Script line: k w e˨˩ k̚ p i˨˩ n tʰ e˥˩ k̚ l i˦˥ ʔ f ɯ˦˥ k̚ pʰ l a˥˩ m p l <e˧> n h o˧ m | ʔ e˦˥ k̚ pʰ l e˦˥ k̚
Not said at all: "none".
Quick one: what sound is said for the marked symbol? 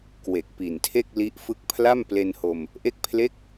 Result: e˧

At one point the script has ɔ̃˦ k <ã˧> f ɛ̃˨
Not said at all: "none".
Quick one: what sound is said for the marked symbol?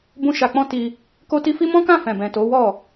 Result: ã˦˨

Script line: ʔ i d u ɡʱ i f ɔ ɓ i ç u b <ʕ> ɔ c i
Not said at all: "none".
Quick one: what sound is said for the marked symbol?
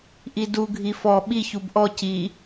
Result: ʔ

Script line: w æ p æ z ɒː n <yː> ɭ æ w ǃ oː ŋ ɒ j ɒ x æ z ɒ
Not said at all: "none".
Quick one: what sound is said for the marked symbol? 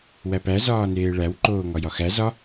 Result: eː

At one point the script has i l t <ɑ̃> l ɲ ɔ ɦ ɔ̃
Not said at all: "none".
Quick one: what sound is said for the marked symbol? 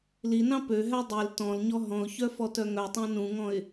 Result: ɔ̃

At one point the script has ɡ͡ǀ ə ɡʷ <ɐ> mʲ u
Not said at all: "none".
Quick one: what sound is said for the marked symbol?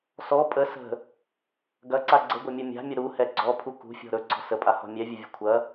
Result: ɐ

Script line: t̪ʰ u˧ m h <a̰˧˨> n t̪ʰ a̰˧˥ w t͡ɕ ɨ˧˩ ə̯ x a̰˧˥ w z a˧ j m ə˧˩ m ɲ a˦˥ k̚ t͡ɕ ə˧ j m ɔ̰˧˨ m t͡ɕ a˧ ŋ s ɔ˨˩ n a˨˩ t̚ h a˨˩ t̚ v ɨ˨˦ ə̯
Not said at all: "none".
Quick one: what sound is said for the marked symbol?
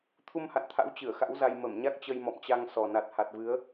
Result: a̰˧˨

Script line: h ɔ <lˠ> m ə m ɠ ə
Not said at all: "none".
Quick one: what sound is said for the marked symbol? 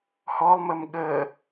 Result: lˠ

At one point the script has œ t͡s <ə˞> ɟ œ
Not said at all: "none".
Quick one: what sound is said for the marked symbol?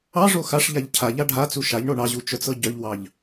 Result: ɤ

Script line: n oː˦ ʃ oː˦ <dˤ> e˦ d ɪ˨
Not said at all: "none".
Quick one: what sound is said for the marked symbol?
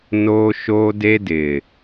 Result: d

